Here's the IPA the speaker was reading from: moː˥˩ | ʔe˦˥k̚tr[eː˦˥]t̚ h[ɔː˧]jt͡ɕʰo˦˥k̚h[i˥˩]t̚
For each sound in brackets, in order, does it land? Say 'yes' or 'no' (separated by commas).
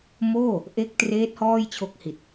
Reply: yes, no, no